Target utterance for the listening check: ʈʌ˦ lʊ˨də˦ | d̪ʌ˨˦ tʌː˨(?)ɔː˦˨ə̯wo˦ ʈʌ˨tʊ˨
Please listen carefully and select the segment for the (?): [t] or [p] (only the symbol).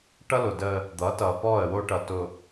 p